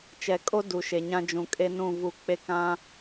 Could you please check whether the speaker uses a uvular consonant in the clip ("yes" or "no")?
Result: no